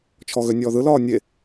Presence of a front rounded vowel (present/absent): present